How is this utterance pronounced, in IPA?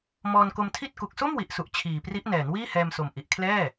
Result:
mɔː˧nko˧mtʰi˥˩t̚ ku˨˩k̚so˥˩mwi˨˩ʔsu˨˩ʔ t͡ɕʰiː˨˩pri˦˥ʔ nɛː˩˦n wiː˥˩hɛː˧mso˨˩m ʔi˨˩ʔkʰlɛː˥˩

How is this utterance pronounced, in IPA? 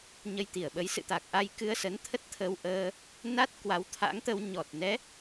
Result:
ɲə˧jt̪i˧˩ə̯ɓə˨˦j sɨ̰˧˨t̪a˨˩k̚ʔa˧j kɨ˧ə̯sə˨˦nt̪ʰə˦˥t̚ t̪ʰə˧wʔəː˧ | na˦˥t̚ kwa˨˦wt̪ʰa̰˧˥ŋt̪ə˧w ɲɔ˨˩t̚nɛ˨˦

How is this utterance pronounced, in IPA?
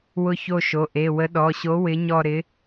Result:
wʊ˦˨ço˦˨ʃo˩˧˩ʔe˩˧˩ wə˨˥ɗɔ˩˧˩ɕo˨˥ wɪ˨˥ɲɔ˦˨ ɾɪ˨˥

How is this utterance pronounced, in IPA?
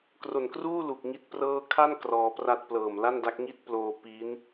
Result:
kro˨˩nkruː˥˩ lu˨˩k̚ŋi˦˥t̚prɤː˥˩ kʰa˥˩n krɔː˧pra˥˩t̚ plɤː˨˩m la˥˩nda˦˥k̚ŋi˥˩t̚ploː˧ pi˦˥n

